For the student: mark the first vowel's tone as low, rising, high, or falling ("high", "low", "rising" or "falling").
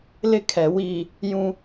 high